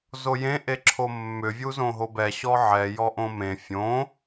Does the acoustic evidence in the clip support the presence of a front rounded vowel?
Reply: yes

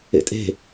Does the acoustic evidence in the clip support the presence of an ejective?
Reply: yes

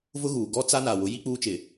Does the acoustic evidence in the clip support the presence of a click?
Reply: no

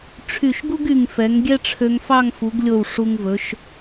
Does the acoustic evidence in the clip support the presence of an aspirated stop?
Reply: yes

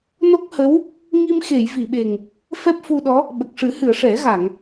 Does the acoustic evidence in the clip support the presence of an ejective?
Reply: no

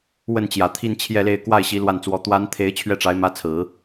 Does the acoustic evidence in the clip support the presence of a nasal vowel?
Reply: no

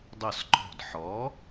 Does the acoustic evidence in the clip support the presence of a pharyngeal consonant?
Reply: yes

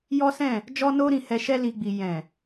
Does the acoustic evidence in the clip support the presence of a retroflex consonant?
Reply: no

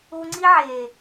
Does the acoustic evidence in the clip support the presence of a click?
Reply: yes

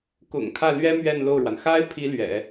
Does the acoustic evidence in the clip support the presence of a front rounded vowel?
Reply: no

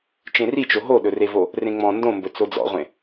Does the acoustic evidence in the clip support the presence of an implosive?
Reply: yes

